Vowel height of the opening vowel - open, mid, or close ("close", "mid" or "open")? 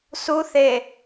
close